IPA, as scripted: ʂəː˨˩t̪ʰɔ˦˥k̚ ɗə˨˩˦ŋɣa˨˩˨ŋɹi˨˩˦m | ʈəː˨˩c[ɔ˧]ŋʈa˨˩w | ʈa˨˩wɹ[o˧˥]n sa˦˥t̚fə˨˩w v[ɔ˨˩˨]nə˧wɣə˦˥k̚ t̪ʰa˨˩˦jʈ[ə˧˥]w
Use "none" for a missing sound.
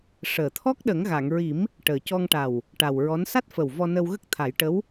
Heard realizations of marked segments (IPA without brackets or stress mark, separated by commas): ɔ˧, ɔ˧˥, ɔ˧, ə˧˥